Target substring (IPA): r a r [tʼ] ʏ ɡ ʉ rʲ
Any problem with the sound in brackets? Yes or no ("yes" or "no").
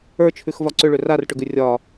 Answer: yes